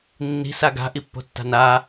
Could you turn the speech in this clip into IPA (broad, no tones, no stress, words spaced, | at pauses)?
nːi̤ saɡa̤ ʔipːo̤tːa̤naː